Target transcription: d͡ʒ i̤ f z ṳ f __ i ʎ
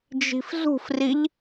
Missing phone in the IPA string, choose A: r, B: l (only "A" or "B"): A